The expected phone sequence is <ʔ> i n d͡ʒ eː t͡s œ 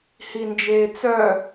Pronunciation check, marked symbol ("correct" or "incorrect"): incorrect